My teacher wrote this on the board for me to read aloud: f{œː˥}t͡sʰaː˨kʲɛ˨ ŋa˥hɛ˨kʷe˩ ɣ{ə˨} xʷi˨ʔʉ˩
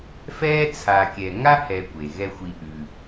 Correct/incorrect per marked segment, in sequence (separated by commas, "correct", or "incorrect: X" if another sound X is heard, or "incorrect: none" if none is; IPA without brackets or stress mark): incorrect: ɛː˥, incorrect: ɛ˨